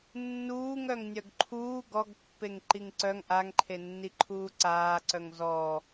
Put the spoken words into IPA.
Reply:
nː uː ŋ œ ŋ nʲ œ ɡ ǃʰ uː ɡ ɔ ɡ pː e ŋ ǃ i ŋ ǀ œ ŋ ʔ a ŋ ǃʰ e nː i ǃʰ uː ǀ aː ǀ œ ŋ z ɔ

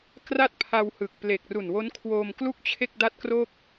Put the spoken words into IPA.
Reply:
k r a˥˩ t̚ pʰ a˧ w h ɯ˨˩ k̚ p l e˨˩ k̚ r u˨˩ n w o˦˥ n kʰ w oː˧ m k l u˥˩ k̚ t͡ɕʰ e˥˩ k̚ d a˥˩ t̚ k r o˥˩ k̚

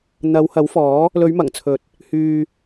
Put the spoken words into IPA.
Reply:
n̪ ɐ˨˧ w h ɐ˨˥ w f ɔː˨˥ | l ɵ˨˧ ɥ m ɐ˨˩ ŋ t͡sʰ ɵ˨˥ t̚ | h yː˧

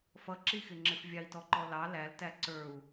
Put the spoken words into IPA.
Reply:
f ʌ ǁ i x ɪ ŋ͡ǁ ɪ f vʲ ɑ i̯ t ɔ ǃ ɔ l ɑ l æ l t æ ǀ ə˞ u̯

